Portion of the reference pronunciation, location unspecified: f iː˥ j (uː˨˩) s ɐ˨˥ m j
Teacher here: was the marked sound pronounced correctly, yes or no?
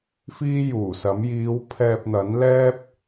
yes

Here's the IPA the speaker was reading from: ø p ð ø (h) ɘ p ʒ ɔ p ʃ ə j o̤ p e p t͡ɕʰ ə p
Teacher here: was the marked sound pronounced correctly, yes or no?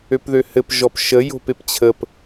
yes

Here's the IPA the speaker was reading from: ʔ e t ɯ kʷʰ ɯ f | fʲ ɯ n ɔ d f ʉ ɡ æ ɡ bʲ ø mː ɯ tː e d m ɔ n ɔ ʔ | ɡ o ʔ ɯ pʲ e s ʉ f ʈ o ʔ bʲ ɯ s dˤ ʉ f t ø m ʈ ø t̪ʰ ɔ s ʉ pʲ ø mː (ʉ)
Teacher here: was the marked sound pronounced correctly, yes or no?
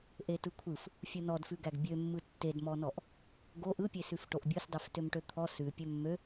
no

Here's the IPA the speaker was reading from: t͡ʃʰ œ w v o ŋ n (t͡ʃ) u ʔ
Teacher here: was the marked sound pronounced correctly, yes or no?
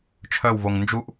no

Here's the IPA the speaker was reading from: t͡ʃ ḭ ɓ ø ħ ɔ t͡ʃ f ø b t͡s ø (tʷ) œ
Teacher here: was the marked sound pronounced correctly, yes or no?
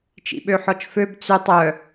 no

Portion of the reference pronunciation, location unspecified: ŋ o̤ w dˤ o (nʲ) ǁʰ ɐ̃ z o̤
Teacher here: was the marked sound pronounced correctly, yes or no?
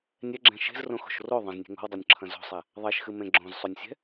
yes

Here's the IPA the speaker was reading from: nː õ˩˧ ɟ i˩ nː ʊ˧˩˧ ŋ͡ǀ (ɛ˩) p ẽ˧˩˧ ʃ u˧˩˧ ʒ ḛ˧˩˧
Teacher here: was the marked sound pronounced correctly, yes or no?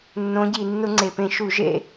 no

